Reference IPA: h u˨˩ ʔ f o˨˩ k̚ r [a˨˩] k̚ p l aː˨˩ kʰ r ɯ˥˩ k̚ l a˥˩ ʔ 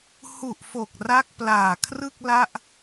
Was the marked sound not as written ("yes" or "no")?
yes